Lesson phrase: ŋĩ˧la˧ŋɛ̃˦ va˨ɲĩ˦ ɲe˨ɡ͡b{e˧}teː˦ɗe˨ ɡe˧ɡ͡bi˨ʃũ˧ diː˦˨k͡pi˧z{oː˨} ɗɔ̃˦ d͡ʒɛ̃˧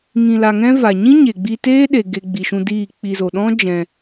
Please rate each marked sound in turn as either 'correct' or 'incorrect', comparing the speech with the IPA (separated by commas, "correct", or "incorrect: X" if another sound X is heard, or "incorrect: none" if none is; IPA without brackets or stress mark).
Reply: incorrect: i˧, incorrect: o˨